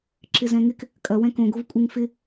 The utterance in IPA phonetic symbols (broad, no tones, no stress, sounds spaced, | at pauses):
ǁ ɪ z ɛ̃ ŋ ɪ k | kʼ ɐ w ɛ̃ k õ ɡ o v kʷʼ ɪ ŋ f ɪ